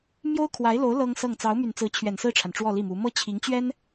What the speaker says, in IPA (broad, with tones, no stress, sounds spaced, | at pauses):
m j o˥ ʊ̯ kʰ w a˧˥ ɪ̯ l o˧˥ ʊ̯ l ɤ˥ ŋ s ɤ˥˩ ŋ t͡s ɑ˧˥ ʊ̯ m y˨˩ n t͡s ɹ̩˧˥ t͡ɕʰ ɥ ɛ˨˩ n s ɹ̩˥˩ ʈ͡ʂʰ a˩ n ʈ͡ʂ w ɔ˥˧ l i˥˩ m u˧˥ m ɤ˥ t͡ɕʰ i˧˥ ŋ t͡ɕ ɥ ɛ˥ n